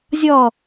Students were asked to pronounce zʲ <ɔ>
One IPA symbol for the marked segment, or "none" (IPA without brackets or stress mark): ɔ